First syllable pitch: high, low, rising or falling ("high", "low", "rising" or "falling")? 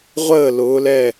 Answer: falling